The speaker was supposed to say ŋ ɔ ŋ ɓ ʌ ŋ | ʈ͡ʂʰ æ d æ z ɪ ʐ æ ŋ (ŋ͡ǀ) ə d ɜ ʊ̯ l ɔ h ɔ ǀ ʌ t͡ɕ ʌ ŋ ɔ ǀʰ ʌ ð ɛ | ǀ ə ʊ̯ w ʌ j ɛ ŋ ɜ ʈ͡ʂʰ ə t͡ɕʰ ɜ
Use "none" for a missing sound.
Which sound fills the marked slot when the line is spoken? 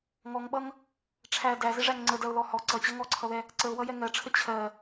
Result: ŋ͡ǀ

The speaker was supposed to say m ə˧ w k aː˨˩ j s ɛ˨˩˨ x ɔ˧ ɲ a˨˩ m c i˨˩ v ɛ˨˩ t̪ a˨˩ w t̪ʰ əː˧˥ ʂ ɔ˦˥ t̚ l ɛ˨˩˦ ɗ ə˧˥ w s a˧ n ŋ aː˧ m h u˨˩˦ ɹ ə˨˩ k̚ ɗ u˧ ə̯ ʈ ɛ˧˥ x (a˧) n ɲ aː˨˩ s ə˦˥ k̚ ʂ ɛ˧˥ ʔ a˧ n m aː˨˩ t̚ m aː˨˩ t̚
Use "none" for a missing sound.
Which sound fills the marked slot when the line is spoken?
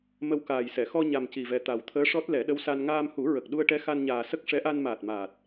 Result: a˧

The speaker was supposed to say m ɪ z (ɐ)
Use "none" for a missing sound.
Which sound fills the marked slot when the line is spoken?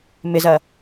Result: ɐ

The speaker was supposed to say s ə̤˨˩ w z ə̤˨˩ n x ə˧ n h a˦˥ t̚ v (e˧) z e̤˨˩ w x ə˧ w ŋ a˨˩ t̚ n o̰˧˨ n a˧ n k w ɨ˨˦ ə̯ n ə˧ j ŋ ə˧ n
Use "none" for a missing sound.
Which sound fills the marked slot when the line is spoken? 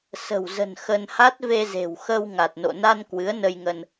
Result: e˧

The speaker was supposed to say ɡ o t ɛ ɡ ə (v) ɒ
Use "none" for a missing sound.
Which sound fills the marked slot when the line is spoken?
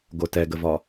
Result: v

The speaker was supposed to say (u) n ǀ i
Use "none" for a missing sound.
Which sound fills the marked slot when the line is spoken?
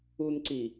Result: u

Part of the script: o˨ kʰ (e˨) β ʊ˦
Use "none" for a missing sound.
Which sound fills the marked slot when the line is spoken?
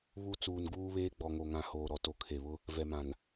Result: e˨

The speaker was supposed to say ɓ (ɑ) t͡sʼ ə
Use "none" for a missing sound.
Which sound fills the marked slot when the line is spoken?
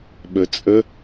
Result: ə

